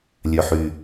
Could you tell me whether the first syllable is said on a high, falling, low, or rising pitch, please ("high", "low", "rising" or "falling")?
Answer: low